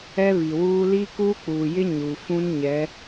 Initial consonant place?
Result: labial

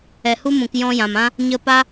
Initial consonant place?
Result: glottal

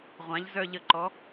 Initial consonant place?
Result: uvular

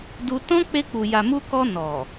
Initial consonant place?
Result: alveolar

